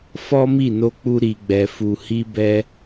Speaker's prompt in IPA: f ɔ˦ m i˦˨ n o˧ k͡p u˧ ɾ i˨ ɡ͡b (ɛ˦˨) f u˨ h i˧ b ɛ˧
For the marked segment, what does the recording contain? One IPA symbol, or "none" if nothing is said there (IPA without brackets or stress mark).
ɛ˨